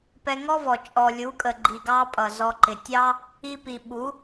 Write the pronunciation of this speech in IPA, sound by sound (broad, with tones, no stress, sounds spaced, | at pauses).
p ɛ˧ ŋ ɔ˦ v ɔ˨ t͡ʃʼ ɔ˨ lʲ u˨˦ kʼ ə˨ ɡ͡ǃ i˨ ɡ ɑ˧ pʼ ʌ˨ z ɔ˧ ǃ ɪ˨ tʲ ɑ˦ | i˧ p i˨ ɓ u˨˦